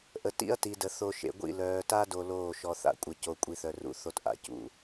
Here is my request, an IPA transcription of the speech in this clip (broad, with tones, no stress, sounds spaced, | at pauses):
ʔ ə˨ t ḭ˦ ɐ̯ t i˨ d ə˨ θ o˨ ʃ ḛ˨ ɡʷ ḭ˦˨ l œː˨ t a˦ d o˦ l oː˦˨ ʃ ɔ˨ θ a̰˨ kʷʼ ə˨ c o˨ kʷʼ i˨ θ œ˨ r ṵ˦ θ o˦ t ʔ a̰˨ c ṵ˨˦